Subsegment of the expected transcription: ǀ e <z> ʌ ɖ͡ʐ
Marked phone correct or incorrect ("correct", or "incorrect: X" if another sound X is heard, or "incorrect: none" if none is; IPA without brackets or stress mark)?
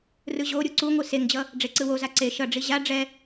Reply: incorrect: ʃ